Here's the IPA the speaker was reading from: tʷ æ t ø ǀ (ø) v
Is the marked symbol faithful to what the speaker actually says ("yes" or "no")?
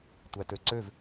yes